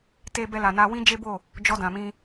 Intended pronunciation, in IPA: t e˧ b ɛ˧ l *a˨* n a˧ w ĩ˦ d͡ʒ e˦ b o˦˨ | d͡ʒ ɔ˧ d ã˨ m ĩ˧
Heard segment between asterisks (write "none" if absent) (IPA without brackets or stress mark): a˨